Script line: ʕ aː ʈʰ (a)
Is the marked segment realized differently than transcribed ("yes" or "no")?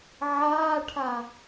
no